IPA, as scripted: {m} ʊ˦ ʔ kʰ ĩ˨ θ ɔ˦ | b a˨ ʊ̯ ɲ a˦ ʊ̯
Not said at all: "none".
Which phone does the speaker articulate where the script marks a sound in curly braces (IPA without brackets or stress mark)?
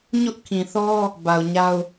ɲ